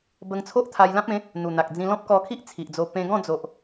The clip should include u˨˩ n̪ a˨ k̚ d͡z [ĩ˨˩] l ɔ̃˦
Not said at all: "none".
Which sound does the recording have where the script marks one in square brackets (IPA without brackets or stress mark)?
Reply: ĩ˧